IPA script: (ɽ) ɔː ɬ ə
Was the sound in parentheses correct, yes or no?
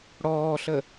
yes